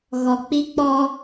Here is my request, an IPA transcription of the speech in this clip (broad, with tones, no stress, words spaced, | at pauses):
ɣɔ˨k͡pi˦k͡pɔ˦